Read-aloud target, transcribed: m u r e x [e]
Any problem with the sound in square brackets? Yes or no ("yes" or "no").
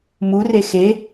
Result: no